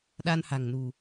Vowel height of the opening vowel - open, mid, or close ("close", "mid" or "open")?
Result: open